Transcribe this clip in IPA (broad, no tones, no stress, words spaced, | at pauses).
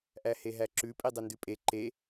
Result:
ʔæheɦæǁʉ pʼidˤendʉpʼe ǃe